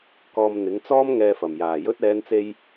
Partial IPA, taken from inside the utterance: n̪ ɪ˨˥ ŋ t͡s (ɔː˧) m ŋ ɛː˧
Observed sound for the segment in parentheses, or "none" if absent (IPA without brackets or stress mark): ɔː˥